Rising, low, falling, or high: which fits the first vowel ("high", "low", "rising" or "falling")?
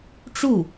falling